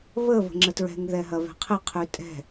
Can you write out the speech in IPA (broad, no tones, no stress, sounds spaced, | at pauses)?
β ə β ə̤ ŋ͡ǁ ə t ɹ ɛ̤ ŋ ð ɛ ɦ ɐ β ɛ̤ qʰ ɘ qʰ ʉ tʼ ɛ̤